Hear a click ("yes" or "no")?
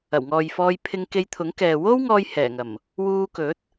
no